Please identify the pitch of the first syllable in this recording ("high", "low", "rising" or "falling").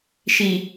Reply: low